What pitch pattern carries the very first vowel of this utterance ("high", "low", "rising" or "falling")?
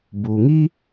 low